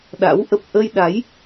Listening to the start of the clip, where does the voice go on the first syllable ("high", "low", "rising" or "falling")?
rising